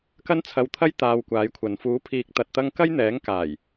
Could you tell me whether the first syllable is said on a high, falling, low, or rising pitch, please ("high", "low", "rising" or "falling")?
high